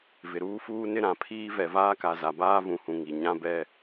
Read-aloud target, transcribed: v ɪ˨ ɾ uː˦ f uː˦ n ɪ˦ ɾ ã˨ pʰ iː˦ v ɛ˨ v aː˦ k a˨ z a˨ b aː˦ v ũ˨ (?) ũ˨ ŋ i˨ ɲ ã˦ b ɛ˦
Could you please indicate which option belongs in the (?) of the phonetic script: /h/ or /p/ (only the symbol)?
h